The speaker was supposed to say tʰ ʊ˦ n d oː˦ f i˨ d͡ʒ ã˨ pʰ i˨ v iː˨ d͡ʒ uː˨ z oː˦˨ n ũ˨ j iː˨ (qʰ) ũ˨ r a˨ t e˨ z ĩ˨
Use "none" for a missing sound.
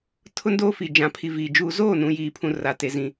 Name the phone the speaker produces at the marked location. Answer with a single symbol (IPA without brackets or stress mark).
pʰ